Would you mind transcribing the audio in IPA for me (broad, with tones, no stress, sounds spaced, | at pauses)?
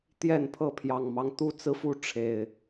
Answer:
t̪ j ɛ˥˨ n pʰ ɤ˥˨ pʰ j ɑ˨˩ ŋ m ɑ˦ ŋ t̪ u˥˨ t͡s ɹ̩˦ f u˦ ʈ͡ʂʰ e˨˩ ɪ̯